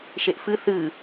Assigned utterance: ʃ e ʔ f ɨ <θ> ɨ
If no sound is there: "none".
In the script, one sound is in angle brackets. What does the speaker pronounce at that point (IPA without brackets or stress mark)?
θ